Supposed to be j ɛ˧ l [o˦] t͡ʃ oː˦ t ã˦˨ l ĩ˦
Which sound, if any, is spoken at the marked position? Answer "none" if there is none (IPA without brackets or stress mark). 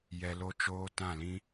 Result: o˦